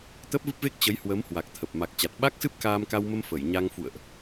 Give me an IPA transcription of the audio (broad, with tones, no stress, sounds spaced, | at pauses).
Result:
t̪ ə˦˥ p̚ v ɨ˦˥ p̚ v e˦˥ k̚ t͡ɕ ə˨˦ j h w ə˨˦ m h w a˨˩ k̚ t̪ʰ ə˨˩ p̚ m a˨˩ k̚ t͡ɕ a˨˩ t̚ ɓ a˦˥ k̚ s ɨ˦˥ p̚ k aː˧ m k a˧ w m ə˧ m f ə˧˩ j ɲ a˧ ŋ f ṵ˧˨ ə̯ ʔ